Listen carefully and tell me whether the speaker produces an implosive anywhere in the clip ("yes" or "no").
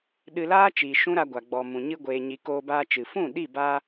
yes